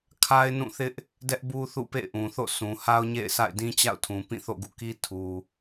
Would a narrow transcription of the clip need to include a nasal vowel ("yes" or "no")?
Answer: yes